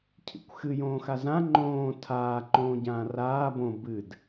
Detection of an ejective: absent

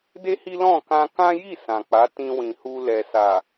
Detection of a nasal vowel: present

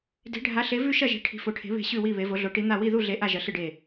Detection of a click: absent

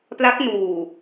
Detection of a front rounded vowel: absent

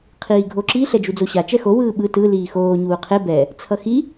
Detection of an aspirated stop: present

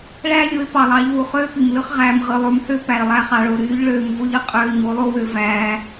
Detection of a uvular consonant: present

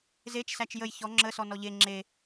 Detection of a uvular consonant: absent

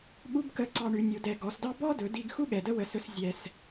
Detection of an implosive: present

